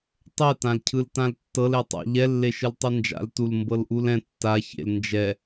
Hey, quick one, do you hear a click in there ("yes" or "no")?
no